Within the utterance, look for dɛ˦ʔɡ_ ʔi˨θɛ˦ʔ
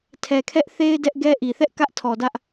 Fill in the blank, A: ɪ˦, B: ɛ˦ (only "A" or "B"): B